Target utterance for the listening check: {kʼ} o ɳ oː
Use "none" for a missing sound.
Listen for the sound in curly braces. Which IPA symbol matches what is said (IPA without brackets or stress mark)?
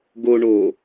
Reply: ɡ